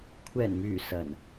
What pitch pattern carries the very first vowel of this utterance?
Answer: low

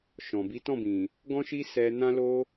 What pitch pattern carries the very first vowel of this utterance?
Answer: low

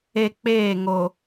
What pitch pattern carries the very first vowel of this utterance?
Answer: high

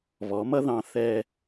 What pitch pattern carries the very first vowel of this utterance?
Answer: rising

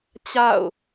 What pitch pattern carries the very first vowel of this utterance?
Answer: falling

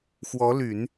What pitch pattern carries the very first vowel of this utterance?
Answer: rising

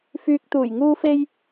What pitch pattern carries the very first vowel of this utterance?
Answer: low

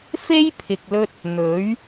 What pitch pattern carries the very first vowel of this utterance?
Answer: high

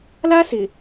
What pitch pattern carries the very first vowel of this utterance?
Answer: high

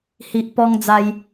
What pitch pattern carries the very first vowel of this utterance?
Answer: low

